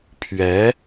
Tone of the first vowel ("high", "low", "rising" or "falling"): rising